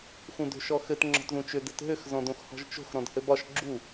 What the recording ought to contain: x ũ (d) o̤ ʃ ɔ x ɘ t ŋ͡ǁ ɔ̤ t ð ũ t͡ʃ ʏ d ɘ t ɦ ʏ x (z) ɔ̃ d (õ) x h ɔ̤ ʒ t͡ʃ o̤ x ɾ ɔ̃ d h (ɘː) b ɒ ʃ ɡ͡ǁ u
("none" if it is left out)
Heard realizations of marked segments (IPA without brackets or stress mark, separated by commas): d, z, õ, ɘ